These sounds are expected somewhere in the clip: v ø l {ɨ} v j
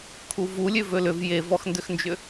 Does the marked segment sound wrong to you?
yes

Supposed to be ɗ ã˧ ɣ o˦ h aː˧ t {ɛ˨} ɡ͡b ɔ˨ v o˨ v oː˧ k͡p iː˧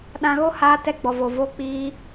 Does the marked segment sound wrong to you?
yes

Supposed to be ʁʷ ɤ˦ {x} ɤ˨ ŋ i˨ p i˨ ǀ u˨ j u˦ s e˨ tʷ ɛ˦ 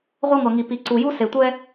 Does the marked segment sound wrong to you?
yes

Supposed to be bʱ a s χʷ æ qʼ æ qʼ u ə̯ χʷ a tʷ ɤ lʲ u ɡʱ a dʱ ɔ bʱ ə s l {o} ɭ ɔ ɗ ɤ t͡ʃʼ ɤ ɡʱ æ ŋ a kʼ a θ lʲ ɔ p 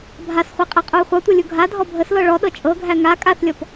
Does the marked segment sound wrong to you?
yes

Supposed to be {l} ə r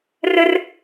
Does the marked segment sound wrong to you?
yes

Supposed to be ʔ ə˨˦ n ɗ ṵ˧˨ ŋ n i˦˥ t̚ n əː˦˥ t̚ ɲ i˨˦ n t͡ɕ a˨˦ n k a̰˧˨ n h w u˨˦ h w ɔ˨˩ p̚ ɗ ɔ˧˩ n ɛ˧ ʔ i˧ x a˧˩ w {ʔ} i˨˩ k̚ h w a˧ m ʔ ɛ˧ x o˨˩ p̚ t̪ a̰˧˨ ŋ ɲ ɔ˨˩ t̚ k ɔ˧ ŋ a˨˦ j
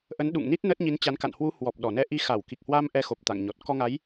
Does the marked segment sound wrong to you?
yes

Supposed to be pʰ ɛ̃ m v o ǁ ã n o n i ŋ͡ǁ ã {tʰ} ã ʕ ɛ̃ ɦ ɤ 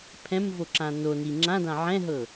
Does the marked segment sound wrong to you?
yes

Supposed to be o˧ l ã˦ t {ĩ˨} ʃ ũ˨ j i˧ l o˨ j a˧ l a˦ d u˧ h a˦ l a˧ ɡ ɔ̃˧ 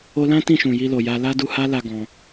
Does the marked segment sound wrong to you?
yes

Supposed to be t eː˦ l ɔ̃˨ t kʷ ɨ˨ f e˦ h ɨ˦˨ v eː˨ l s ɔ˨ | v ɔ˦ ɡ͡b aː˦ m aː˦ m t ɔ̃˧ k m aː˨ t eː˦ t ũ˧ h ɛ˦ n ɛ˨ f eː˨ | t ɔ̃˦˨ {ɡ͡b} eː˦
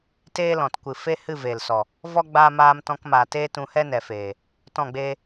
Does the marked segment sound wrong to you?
no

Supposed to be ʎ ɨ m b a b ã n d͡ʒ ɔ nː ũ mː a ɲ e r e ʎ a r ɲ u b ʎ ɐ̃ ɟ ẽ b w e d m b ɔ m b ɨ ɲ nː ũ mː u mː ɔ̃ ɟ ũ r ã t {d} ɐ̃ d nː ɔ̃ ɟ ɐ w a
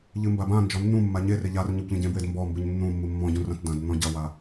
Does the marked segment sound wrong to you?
no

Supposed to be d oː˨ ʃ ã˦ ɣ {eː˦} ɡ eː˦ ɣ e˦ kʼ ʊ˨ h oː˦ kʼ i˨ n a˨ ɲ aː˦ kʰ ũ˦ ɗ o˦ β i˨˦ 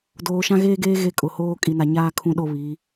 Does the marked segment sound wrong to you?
no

